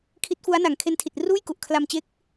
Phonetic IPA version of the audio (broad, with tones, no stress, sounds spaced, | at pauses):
kʰ i˦˥ t̚ f u˦˥ a̯ n a˨˩ ŋ kʰ e˧ n tʰ i˨˩ t̚ r uː˥˩ j k u˨˩ ʔ kʰ l a˧ m t͡ɕ e˦˥ k̚